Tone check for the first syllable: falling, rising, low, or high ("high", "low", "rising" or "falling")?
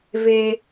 high